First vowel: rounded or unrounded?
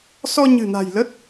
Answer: rounded